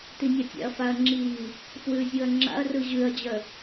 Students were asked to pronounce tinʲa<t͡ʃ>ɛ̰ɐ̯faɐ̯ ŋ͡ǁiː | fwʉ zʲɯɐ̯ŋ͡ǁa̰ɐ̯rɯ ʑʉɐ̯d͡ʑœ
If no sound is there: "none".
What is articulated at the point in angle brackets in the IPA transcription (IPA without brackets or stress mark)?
tʲ